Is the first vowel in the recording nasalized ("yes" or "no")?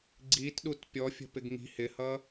no